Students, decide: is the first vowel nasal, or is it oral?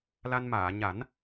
oral